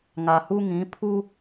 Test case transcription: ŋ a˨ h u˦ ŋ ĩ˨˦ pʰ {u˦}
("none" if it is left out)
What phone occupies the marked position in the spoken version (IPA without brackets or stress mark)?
u˦